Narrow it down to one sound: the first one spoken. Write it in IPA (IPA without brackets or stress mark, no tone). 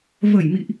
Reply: v